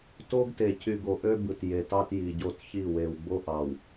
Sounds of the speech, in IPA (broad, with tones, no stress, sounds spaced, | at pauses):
t o˦ ɡ t e˨ c y˨ ɡ o˨ ʔ ø˦ b ɯ˨ t j e˨ t ɑ˦ t j i˨ ɟ o˦˨ t ç i˦˨ w e˨ w ɡ͡b o˦ ʔ ɑ˨ w